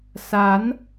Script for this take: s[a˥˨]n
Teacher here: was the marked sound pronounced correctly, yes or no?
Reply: no